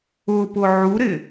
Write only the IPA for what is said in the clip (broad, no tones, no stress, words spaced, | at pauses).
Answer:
ʊpʊ ʕuɾɪ